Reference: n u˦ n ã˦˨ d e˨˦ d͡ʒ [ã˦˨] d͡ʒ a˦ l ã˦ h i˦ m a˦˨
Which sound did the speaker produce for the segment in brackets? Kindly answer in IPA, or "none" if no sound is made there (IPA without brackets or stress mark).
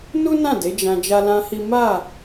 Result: ã˧